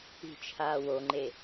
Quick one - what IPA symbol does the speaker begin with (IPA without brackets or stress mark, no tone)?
i̤